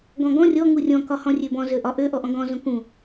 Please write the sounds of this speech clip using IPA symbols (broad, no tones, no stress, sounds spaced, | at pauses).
ɡ ɔ̃ ɡ ɔ̃ rʲ ɔ ŋ u rʲ ɔ̃ k ɒ h ɔ̃ rʲ ø b ɔ̃ z ø ʔ ɒ ʔ ø ʔ ɔ ʔ ɔ̃ ɡ ɔ̃ z õ k ũ